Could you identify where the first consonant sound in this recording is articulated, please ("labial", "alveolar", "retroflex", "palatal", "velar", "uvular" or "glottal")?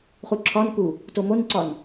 uvular